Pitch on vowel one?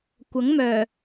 rising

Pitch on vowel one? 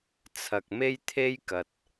low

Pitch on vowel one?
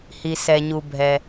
low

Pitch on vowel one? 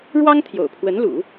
high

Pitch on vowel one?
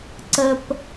high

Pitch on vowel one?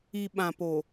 low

